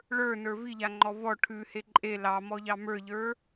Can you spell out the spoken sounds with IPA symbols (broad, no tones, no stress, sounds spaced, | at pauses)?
ɭ ə˞ n ə˞ v i ʎ a ŋ͡ǃ ɔ v ɔ ʈʰ ʉ h e ǃʼ e l ɑ m ɔ ʎ ɑ m ə˞ ʎ ə˞